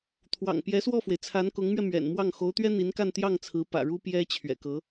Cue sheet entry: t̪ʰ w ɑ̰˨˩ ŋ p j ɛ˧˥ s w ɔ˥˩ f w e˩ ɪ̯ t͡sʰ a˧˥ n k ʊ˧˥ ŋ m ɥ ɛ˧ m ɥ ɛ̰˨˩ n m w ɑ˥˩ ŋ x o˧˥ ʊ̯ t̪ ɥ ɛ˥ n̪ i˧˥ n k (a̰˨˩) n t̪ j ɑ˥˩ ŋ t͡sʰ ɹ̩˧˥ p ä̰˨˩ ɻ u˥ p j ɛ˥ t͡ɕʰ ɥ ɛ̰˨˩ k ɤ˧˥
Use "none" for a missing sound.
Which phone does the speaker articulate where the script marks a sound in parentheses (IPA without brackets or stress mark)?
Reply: a˥˧